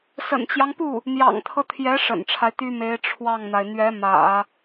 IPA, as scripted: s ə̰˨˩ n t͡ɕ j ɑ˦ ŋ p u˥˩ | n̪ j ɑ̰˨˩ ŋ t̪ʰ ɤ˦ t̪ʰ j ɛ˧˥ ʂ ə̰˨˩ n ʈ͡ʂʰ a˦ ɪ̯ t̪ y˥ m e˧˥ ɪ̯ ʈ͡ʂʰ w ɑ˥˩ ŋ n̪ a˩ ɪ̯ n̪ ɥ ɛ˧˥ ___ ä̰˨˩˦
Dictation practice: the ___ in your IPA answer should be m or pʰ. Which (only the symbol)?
m